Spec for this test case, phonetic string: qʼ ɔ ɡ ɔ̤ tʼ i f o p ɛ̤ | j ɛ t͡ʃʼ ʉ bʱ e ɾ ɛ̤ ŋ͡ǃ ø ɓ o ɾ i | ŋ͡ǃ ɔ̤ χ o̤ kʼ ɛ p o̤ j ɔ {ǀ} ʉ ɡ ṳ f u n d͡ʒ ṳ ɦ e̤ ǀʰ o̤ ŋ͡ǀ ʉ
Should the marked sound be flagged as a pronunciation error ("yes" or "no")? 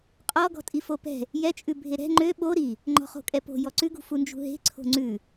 no